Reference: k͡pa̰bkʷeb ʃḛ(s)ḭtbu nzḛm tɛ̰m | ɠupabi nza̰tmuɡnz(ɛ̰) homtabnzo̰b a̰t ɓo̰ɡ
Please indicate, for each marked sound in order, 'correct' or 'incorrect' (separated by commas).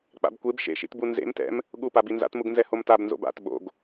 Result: incorrect, incorrect